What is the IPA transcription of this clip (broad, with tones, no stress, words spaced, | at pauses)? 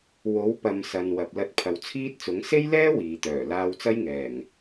wo˨˥wpɐ˨m sɐ˨nwɐ˨p̚ lɐ˧t̚pʰɐ˨wt͡sʰiː˥t̚t͡sʊ˨˥ŋ se˥jlɛː˥ wiː˨t̪œː˨˩ laː˧wt͡sɐ˥jŋɛː˨˩ŋ